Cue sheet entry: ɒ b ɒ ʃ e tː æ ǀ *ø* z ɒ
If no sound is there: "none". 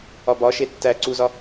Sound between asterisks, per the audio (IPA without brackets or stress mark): u